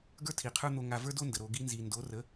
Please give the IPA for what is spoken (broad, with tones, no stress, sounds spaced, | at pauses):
ɡ ə˞˦ tʰ i˨ qʰ ə˞˦ n̪ o˧ ŋ a˧ v ə˞˦ d o˦ n d ə˨ ɾ o˧ ɡ i˧ n z i˨ n d o˨˦ r ə˨˦